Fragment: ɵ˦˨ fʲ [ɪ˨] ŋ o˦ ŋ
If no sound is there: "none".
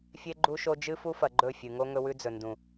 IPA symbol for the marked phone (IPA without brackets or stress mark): ɨ˨